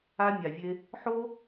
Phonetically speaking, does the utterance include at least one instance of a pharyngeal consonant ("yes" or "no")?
yes